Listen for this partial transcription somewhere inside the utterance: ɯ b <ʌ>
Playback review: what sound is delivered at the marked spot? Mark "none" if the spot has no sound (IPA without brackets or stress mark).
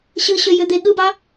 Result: ɑ